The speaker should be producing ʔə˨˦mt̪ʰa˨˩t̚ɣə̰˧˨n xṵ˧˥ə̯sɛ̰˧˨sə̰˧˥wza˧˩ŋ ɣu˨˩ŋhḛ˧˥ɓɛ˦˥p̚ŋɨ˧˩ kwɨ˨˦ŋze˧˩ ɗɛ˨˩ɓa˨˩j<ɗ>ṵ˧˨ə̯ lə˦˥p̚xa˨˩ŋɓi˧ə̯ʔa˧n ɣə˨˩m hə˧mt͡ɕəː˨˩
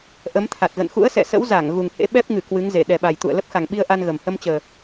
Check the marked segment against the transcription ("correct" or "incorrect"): incorrect